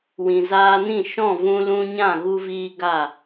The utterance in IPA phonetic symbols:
w ĩ˨ z aː˧ n ĩ˦˨ ʃ ɔ̃˦˨ v ũ˧ l ũ˧ ɲ ã˦˨ ɣ u˧ v iː˧ ɡ a˦˨

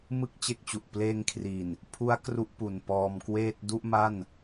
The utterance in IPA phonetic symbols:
m ɯ˥˩ k̚ t͡ɕ e˦˥ k̚ t͡ɕ u˨˩ ʔ p l eː˧ ŋ kʰ r i˨˩ n | pʰ u˦˥ a̯ k r u˦˥ ʔ p u˨˩ n p ɔː˧ m k w eː˥˩ t̚ d u˥˩ ʔ m a˥˩ n

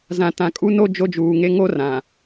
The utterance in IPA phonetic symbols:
z ã˨ t ã˨ kʼ u˦ n o˦ d͡ʒ o˦ d͡ʒ uː˨ ŋ e˦ ŋ o˦ r ã˨

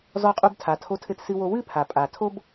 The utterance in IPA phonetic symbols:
z ɔ˧ qʼ u˧ b tʰ a˩ tʰ o˧ tʰ ɘ˧ t s ɨ˧ w o˧ w ɨ˥ pʰ a˩ pʼ a˩ tʰ o˥ b

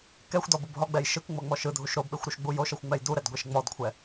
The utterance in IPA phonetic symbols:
k ɛ xʷ d ɔ b u b ɦ ɔ ɡ͡b ɛ j ʃ ɯ k ŋ͡m ɤ ŋ͡m ɔ ʃ ɯ dʱ u ʃ ɾ o b ɓ e xʷ ɾ u ʃ ɡ͡b u j o ʃ ɤ xʷ ŋ͡m ɛ j d u ɾ ɛ d ɡʷ e ʃ ŋ͡m ɔ d kʷʰ ɛ

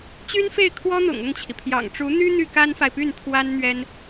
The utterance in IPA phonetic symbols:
t͡ɕ y˥ n f e˥˩ ɪ̯ kʰ w ɔ˥ n̪ ʊ̰˨˩ ŋ ʊ˥˩ ŋ t͡ɕʰ i˩ pʰ j ɑ̰˨˩ ŋ ʈ͡ʂ u˧˥ n̪ y˥ n̪ y˥˩ k a˥ n f a˨ ɪ̯ p y˥˩ n pʰ w a˥ n n̪ ɥ ɛ˥ n

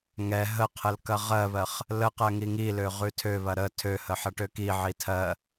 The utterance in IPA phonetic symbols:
ŋ ɛ ɦ ə qʰ ə l k ɐ ʁ ɜ β ɜ χ | l ə q ɜ ŋ i ŋ i l ø ʁ ʉ tʰ ø β ɐ ɾ ə tʰ ø h ə ħ ɐ ʈ ø k i ʕ i tʰ ɜ

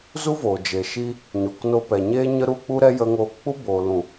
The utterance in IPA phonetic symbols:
z u˦ v oː˨ d͡ʒ e˨ ʃ i˧ | ɲ o˨ k n o˧ p ɛ˨ ɲ eː˧ ɲ ə˧ ɾ u˧ k͡p u˦ ɾ ɛ˦ j ə˧ ŋ oː˧ k k͡p u˦ b o˨ l ũ˨

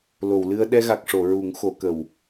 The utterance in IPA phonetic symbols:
l o˨˩˨ w l ɨ˧ ə̯ ɗ ɛ˧ ɣ a˨˩ k̚ ʂ o˨˩˨ ɹ u˨˩˦ ŋ x o˨˩˦ k ə˨˩ w

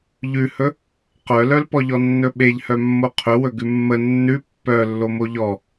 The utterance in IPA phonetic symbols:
ʎ ʉ h ɵ | q œ l œ l p ɔ ʎ ɔ nː ɵ ɓ e ʎ h œ mː o qʰ ɵ w ɵ ɡ ʉ mː ə nː ʉ pː œ lː o m o ʎ ɔ

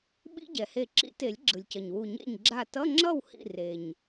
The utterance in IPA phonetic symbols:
ɓ ḭ˦˥ ɟ ɛ˩ h e˧˩ ǁ ḭ˨˩˦ t e˨˩˦ lʲ ɡ͡ǁ ɯ˩ lʲ c ʌ˩ ɲ w u˧˩ ɲ ḛ˥˩ ɲ ɡ͡ǁ a˥˩ t ʌ˧˥˧ ŋ͡ǁ ʌ˥˩ w h ḭ˥˩ r e˩ ɲ

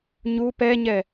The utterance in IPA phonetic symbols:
ɲ u p ɛ ɲ ɛ

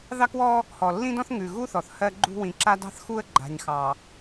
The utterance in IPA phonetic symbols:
ð ɑ˦ k w ɔ˦ | h ɔ˨ lː ĩ˦ d ɔ̃˦ θ ŋ ʉ˨ ɣ u˦ θ ɔ˨ θ h ɜ˦ ɡ͡ǃ ṳ˦ w ĩ˨ ǁ a˦ d ɑ̤˦ θ x u˦ ə̯ ɡ͡ǃ a̤˨ ɲ x ɑ˨

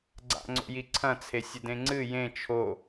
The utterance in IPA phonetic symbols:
ɡ͡ǀ a̰ ŋ͡ǀ o̰ j i ǀʰ ɐ̃ t͡sʰ e sʲ ɘ d ẽ ŋ͡ǀ ɨ j ẽ t͡ʃʰ o

